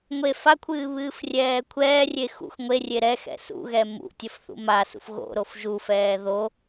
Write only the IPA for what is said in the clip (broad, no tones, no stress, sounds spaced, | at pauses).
ŋʷ e f a kʷʰ ɨː β ɨː f rʲ ɛː kʷʰ ɛː rʲ e x ṵ x ŋʷ e rʲ e ɾ ɛ x ɛ̰ s ṵ ɣ ɛ m ṵ tʲ ə f θ ṵ m a s ṵ f ɣ o̰ ɾ o f ʒ u f ɛː ð o